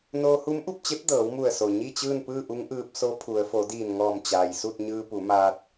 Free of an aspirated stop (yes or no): no